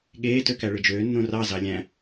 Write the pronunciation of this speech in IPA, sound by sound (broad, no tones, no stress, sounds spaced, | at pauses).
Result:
ɠ eː t ø k æ ɭ ɯ d͡ʒ øː nː õ r ɑ z ɑ lʲ æ̃